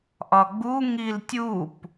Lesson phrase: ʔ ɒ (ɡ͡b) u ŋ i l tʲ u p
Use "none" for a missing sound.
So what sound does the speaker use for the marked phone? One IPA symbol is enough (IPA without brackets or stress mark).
ɡ͡b